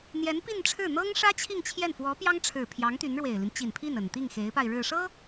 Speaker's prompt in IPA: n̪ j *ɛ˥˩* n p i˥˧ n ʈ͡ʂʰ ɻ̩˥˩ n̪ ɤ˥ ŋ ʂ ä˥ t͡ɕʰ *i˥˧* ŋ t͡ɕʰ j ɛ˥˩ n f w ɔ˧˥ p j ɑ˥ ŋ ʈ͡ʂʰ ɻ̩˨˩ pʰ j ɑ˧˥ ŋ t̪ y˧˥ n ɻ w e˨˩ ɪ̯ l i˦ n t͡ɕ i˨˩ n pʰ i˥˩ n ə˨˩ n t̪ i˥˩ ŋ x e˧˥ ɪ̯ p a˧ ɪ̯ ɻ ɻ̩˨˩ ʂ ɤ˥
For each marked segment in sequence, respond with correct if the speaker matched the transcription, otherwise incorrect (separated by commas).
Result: incorrect, correct